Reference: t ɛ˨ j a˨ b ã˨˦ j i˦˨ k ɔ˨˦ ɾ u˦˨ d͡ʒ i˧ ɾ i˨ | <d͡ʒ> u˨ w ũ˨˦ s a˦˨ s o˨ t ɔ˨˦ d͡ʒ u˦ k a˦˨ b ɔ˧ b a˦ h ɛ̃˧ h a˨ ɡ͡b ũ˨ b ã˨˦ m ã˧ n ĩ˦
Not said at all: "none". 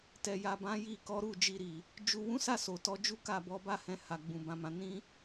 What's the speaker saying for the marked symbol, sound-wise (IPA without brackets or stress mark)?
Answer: d͡ʒ